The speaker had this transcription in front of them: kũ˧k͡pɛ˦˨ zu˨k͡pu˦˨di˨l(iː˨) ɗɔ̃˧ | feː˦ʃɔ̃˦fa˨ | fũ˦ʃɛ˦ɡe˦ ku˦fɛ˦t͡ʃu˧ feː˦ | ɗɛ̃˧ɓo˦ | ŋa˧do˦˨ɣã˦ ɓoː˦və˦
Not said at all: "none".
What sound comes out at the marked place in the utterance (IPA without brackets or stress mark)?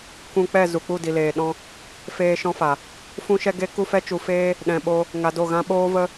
eː˨